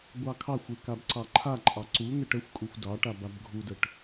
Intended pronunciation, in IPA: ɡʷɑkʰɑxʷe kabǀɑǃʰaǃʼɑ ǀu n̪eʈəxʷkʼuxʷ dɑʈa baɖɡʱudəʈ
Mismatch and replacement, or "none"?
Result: ɖ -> b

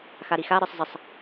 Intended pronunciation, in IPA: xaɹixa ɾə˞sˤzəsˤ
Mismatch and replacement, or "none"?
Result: ɹ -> ɾ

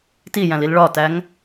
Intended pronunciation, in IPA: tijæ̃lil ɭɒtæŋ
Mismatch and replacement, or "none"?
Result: none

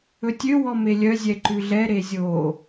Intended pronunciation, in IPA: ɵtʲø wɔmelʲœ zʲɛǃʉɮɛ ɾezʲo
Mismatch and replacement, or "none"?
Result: none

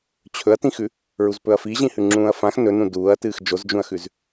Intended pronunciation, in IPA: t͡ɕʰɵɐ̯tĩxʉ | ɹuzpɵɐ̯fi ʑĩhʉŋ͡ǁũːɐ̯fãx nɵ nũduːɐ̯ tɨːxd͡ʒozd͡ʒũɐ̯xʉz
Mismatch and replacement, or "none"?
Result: none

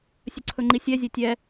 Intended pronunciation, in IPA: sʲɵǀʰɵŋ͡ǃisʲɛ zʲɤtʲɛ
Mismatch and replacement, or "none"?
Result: ɤ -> ɵ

